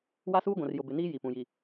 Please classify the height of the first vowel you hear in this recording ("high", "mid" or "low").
low